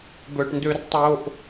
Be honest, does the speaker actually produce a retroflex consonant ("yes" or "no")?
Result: yes